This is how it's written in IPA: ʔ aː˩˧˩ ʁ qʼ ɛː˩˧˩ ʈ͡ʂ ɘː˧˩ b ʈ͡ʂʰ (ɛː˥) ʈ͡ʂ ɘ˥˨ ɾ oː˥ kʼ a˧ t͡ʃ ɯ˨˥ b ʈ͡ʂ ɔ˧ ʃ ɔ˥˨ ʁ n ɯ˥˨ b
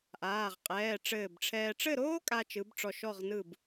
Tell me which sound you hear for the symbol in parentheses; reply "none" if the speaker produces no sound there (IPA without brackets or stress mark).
ɛː˧